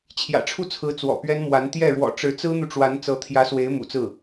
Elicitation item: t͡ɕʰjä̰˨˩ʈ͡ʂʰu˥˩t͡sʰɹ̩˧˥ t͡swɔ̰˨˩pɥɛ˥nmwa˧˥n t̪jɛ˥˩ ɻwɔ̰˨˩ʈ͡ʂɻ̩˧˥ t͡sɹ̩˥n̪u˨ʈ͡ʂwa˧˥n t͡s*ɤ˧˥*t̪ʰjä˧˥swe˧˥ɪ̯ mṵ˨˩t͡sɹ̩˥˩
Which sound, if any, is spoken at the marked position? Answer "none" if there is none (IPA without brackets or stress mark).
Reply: ɤ˧˥